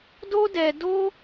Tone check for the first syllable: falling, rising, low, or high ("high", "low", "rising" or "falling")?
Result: high